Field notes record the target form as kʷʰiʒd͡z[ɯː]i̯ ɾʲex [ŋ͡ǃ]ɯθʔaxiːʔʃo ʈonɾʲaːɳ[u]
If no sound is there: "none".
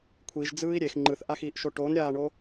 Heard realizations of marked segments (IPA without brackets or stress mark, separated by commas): ɯː, ŋ͡ǃ, o